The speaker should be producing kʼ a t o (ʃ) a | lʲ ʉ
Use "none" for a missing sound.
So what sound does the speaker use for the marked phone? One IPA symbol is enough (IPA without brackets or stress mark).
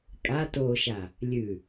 ʃ